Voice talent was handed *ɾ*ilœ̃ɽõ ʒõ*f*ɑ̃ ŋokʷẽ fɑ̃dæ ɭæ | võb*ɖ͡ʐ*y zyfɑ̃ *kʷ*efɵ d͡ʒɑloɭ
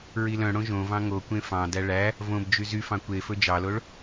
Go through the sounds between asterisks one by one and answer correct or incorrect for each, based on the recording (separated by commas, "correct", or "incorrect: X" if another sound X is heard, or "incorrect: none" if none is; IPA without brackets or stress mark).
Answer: incorrect: ɹ, incorrect: v, incorrect: d͡ʒ, correct